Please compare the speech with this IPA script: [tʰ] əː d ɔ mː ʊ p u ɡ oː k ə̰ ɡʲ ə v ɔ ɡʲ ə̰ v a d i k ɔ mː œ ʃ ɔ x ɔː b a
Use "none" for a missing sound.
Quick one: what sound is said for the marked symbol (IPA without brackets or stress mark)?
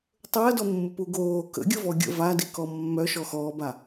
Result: tˤ